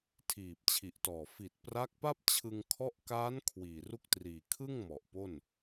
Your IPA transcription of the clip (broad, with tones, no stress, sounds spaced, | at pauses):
tʰ iː˨˩ p̚ t͡ɕʰ i˨˩ ʔ t ɔː˨˩ f i˨˩ t̚ p r a˦˥ k̚ p a˥˩ p̚ t͡ɕʰ ɯ˧ ŋ kʰ ɔ˦˥ ʔ k aː˦˥ n kʰ w iː˨˩ r u˥˩ k̚ t r iː˨˩ kʰ ɯ˥˩ ŋ m ɔ˨˩ ʔ p o˥˩ n